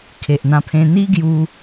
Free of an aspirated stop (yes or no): no